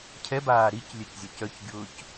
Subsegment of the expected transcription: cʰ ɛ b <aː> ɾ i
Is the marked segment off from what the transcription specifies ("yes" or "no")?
no